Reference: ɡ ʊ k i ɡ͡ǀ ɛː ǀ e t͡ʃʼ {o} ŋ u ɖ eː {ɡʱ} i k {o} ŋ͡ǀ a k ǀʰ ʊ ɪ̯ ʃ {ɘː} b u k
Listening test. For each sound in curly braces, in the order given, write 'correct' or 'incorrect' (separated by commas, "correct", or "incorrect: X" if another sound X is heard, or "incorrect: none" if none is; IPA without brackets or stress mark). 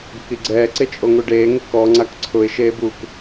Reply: correct, incorrect: ŋ, incorrect: ɔ, incorrect: eː